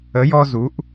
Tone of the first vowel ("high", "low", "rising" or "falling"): rising